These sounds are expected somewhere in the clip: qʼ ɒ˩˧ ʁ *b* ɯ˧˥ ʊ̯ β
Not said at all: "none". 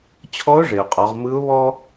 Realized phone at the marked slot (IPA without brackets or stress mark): m